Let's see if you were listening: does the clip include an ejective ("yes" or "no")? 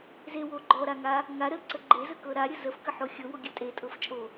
yes